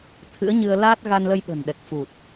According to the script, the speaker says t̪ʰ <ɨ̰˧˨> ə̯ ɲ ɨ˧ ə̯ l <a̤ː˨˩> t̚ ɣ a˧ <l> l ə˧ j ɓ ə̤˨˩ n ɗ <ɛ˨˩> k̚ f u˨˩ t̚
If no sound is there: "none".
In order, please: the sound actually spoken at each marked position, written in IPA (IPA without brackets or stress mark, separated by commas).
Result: ɨ̰˧˥, aː˦˥, n, ɛ˨˩